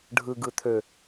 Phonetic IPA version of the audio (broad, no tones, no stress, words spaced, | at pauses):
ɖʱɯɡɯ t̪ʰø